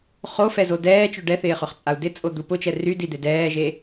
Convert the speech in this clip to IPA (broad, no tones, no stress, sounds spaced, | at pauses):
χ o f ɛ z o d ɛː t͡ʃ œ ɖ ɛ θ ɪː χ ʏ χ t͡sʼ a u̯ d ɪ t͡sʼ o d̪ u p ʊ t͡ʃ ɛ r y d i d̪ e d ɛː ʒ e